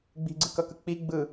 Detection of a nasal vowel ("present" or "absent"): absent